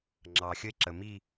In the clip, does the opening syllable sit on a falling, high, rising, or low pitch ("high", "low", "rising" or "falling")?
low